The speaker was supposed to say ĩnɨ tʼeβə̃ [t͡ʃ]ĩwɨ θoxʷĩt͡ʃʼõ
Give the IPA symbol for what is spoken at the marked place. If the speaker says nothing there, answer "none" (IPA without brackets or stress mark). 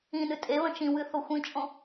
t͡ʃ